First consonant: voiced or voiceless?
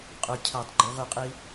voiceless